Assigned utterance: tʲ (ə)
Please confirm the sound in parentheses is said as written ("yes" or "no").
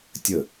yes